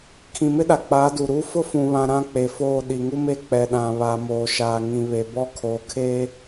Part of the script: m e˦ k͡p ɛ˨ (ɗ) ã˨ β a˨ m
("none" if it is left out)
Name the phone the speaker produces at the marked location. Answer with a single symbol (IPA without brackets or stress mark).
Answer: ɗ